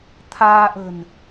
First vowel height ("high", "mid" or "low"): low